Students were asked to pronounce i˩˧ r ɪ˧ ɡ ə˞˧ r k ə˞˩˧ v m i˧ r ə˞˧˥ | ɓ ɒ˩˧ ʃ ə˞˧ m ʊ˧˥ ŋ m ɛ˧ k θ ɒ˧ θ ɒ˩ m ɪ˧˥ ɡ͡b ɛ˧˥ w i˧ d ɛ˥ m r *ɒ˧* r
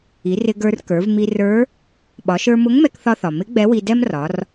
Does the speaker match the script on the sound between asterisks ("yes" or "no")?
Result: no